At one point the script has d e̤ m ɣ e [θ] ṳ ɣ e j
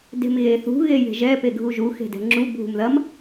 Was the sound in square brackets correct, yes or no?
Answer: yes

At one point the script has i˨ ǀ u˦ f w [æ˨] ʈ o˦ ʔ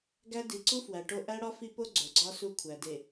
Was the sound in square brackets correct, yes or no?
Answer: yes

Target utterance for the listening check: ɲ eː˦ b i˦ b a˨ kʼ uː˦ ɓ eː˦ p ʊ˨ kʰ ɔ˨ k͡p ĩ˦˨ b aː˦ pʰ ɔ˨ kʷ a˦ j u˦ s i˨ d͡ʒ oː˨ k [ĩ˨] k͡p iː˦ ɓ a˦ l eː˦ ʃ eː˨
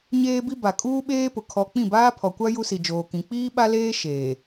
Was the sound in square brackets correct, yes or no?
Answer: yes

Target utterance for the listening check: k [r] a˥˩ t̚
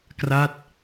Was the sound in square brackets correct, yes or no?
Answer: yes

